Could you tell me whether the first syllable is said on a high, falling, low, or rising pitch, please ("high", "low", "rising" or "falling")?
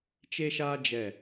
high